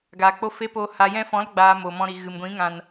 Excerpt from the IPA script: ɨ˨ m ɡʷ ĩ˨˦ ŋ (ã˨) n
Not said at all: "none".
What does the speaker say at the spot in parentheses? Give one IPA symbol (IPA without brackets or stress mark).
ã˨